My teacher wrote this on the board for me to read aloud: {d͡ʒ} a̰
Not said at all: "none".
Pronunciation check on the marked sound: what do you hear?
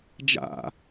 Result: d͡ʒ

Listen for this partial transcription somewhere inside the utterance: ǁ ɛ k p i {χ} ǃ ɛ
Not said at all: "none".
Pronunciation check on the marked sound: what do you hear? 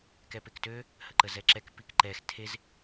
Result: k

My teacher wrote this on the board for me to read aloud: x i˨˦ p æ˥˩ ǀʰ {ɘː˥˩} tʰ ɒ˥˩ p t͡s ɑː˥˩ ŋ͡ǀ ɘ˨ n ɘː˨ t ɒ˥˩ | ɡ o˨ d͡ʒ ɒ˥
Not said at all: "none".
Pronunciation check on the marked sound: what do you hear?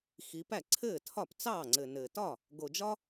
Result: ɘː˥˩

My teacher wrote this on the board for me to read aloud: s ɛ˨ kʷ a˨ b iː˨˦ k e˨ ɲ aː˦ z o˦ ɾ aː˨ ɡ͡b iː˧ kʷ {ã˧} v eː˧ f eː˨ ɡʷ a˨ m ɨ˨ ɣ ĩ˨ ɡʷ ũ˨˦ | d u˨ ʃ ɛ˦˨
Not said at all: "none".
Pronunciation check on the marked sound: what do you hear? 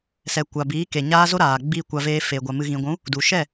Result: a˧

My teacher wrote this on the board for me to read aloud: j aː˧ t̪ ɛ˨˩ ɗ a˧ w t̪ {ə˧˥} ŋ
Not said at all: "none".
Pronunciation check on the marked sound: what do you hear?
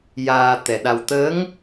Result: ə˧˥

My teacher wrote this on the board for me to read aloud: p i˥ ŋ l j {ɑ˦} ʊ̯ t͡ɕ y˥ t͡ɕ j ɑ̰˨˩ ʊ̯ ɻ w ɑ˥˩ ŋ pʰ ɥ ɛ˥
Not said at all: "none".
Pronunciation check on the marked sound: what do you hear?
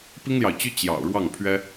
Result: ɑ˨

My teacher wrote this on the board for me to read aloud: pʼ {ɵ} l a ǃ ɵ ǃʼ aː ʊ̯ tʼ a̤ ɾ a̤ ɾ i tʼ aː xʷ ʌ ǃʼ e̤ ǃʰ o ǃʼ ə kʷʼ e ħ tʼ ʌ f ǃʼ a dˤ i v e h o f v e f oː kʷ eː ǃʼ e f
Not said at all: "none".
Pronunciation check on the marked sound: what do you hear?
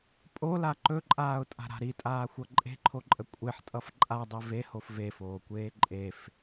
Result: o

